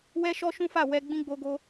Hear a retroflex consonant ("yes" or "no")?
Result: no